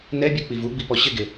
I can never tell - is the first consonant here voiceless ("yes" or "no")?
no